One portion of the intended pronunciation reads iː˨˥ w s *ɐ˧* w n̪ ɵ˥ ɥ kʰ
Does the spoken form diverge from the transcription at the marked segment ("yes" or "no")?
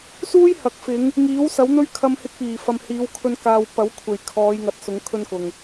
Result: yes